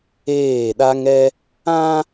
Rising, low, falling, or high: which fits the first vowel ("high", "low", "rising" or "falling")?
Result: falling